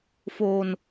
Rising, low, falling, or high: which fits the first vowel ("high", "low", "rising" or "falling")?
low